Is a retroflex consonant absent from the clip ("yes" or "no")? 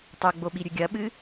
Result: yes